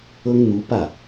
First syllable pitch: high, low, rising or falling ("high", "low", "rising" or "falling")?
high